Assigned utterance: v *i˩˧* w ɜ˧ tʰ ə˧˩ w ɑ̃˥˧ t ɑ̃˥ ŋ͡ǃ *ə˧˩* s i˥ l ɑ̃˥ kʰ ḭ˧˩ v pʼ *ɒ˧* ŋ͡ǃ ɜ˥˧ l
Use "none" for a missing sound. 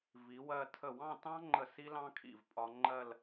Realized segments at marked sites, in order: i˩˧, ə˧˩, ɒ˧

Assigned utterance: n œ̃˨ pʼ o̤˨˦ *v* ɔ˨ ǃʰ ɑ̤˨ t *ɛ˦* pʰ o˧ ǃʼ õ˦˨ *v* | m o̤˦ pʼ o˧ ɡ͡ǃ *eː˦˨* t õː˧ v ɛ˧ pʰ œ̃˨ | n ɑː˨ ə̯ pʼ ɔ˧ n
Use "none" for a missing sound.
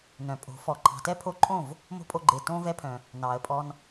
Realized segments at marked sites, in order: f, ɛ˦, v, eː˨

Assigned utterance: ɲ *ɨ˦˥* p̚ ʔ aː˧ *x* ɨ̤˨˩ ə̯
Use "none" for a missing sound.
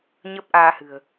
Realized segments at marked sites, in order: ə˦˥, h

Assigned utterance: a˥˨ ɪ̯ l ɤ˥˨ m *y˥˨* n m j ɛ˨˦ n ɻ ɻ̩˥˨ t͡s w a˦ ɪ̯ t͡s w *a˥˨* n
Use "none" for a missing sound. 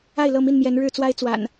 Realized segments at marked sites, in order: i˥˨, a̰˨˩

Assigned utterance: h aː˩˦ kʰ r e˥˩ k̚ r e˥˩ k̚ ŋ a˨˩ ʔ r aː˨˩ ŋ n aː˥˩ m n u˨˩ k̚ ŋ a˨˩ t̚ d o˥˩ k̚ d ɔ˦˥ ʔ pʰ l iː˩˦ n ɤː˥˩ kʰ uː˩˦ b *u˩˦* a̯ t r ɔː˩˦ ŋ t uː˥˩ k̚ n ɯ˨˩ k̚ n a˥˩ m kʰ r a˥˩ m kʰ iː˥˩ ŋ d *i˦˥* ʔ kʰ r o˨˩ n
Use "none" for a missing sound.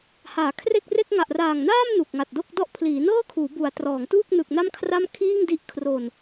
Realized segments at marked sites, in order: u˩˦, i˦˥

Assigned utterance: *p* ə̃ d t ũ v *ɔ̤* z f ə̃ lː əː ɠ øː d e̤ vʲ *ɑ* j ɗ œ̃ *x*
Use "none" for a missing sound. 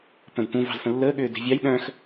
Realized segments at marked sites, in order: p, ɑ̤, ɑ, x

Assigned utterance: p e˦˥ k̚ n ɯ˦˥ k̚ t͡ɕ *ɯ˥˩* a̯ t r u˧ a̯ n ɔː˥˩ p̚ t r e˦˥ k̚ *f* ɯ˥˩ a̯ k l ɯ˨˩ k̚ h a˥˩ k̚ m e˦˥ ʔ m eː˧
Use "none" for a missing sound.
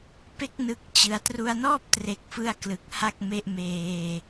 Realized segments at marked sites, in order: ɯ˧, f

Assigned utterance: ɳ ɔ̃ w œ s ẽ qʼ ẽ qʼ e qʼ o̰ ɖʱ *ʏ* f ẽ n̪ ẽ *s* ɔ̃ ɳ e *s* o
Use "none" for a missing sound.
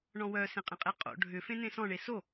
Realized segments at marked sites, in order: ʏ, s, s

